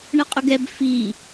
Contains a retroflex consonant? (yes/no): yes